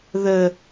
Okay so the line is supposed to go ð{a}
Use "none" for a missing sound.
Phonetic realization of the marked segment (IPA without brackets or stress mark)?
ə